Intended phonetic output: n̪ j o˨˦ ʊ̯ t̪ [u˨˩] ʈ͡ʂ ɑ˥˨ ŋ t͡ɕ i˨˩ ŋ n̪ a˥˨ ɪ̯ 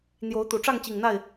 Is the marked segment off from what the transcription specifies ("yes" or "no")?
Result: no